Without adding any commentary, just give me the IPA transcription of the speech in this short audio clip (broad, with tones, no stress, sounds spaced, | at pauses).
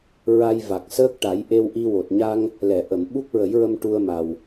ɹ a˧ j v a˨˩ k̚ s əː˦˥ k̚ ʈ a˨˩˦ j ʔ e˧ w ʔ i˧ w o˨˩ t̚ ɲ a˧ ŋ | l ɛ˨˩˨ ʔ ə˨˩˨ m ɓ u˦˥ k̚ ɹ ə˨˩˦ j ɹ ə˧ m ʈ u˧ ə̯ m a˨˩ w